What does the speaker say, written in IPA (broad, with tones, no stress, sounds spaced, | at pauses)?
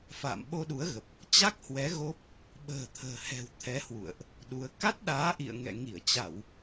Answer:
f a̰ː˧˨ m ɓ o˧ ɗ u˨˦ ə̯ ɣ ə˨˩ p̚ | t͡ɕ a˦˥ k̚ h w ɛ˨˦ ɣ o˦˥ p̚ | ɓ ə̤ː˨˩ t̪ʰ ə̤ː˨˩ h ɛ̤˨˩ w t̪ʰ ɛ˨˦ h w ṵ˧˨ ə̯ ʔ | ɗ u˨˦ ə̯ k a˦˥ t̚ ɗ aː˨˦ ʔ ḭ˧˨ ə̯ ŋ ɛ̰˧˨ ŋ i˧˩ ə̯ t͡ɕ a˧˩˨ w